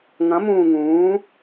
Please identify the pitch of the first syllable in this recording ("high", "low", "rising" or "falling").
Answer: rising